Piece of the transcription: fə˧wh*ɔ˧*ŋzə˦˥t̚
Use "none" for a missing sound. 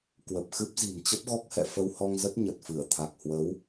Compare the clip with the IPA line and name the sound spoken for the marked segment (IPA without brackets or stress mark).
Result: ɔ˧